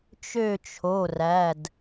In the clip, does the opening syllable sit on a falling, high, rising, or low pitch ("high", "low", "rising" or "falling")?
falling